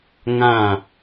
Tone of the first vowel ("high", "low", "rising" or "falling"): falling